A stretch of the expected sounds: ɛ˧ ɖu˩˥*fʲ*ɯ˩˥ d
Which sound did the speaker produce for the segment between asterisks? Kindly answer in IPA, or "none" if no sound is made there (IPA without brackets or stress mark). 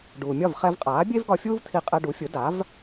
fʲ